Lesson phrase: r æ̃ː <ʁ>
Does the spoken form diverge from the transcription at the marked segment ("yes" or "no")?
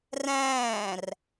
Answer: yes